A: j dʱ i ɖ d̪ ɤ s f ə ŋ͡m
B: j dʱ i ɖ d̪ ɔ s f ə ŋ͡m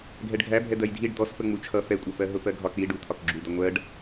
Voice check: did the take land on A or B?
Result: B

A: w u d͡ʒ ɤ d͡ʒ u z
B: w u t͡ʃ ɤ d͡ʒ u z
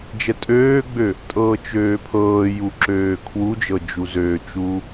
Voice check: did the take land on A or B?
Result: A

